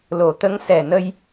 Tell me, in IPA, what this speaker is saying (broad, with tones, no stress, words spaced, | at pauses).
lo˨˩˦t̪ə˧˥ŋ sɛ˨˩nə˧j